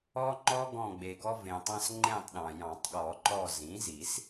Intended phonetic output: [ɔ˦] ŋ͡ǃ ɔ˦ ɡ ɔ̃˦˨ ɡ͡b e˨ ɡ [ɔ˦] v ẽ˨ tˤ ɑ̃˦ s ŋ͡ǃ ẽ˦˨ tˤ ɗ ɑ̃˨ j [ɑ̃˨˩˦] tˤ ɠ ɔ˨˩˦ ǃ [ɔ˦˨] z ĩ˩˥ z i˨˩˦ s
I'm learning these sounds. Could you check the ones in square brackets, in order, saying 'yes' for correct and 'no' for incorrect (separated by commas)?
yes, yes, yes, yes